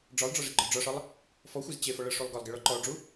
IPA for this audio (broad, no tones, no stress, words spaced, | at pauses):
ɖ͡ʐɒlˠɖ͡ʐɒʐeɡ͡ǃɒ ɖ͡ʐɒʂɒlˠ | fɔxʷez t͡ɕefɔ ɭɤʂulˠ ɡɒlˠɡeɭɔ ǃɔɖ͡ʐu